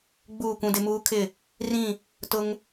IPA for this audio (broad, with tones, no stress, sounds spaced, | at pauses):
ɡ͡b uː˦˨ kʷ ũ˦ d ɪ˦ m uː˦ kʰ ɪ˦˨ | r ĩ˦˨ | t ʊ˦ ŋ